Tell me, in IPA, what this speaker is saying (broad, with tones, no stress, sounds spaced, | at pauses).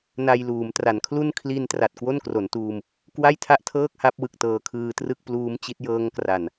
n a˧ j l uː˩˦ m t r a˩˦ n kʰ l u˥˩ n kʰ l i˧ n t r a˨˩ t̚ k w o˥˩ n k r o˩˦ n t uː˧ m | k w a˥˩ j tʰ a˥˩ ʔ tʰ ɤː˥˩ k̚ h a˦˥ p̚ w ɯ˨˩ k̚ t ɤː˧ kʰ ɯː˧ t r ɯ˥˩ k̚ p l uː˦˥ m t͡ɕ i˦˥ t̚ j ɤː˦˥ ŋ k r a˨˩ n